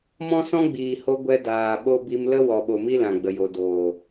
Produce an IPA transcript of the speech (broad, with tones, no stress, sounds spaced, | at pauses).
m ɔ̃˦ s ɔ̃˦ ɡ͡b iː˨ h o˧ ɡʷ ɛ˦ d aː˨ ɓ o˦ b i˧ m l ə˦ w ɔ˨ ɓ o˨ m i˦ l ã˨ ɡ͡b ə˨ j o˨ d oː˨